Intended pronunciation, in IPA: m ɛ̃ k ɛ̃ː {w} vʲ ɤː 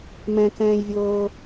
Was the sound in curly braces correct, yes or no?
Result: no